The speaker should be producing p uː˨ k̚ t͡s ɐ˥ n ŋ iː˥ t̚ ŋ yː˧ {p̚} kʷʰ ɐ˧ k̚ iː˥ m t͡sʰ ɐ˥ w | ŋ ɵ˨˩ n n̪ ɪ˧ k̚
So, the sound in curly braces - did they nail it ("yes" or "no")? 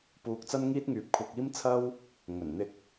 yes